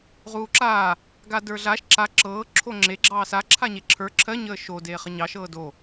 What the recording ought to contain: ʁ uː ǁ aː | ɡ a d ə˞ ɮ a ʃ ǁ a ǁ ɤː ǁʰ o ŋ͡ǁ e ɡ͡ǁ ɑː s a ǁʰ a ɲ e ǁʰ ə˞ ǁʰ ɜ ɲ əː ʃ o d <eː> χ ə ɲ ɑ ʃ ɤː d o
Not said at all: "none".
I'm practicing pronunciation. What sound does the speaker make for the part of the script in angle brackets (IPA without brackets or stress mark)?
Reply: eː